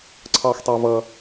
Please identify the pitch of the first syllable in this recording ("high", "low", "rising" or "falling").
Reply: low